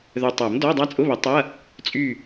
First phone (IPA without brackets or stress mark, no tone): ð